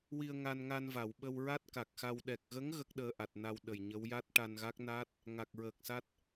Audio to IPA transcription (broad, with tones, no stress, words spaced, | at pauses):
wi˧ə̯ŋa˧nŋa˧nva˨˩˨w ɓə˧wɹa˦˥t̚ka˨˩k̚xa˧w ɗɛ˨˩k̚ɣə˧˥ŋ ɣə˦˥k̚ɗəː˧ʔa˨˩t̚na˧w ɗə˨˩jɲə˧˥w ja˦˥t̚ʈa˧nɣa˦˥k̚na˦˥t̚ | ŋa˨˩k̚ɹəː˨˩k̚sa˦˥t̚